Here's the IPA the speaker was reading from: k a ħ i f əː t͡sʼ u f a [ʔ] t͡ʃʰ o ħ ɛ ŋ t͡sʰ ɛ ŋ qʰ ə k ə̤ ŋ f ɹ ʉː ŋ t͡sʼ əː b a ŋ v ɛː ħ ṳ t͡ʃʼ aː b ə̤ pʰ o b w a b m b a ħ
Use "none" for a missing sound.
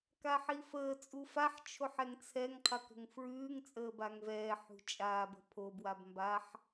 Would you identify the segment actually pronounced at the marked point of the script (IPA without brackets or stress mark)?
ħ